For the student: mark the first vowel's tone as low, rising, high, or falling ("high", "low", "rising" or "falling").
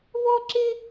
high